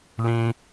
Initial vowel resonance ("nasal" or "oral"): nasal